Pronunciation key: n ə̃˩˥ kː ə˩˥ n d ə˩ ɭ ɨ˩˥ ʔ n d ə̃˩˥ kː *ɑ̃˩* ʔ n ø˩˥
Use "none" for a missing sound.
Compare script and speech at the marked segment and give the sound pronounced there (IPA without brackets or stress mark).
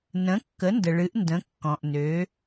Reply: ɔ̃˩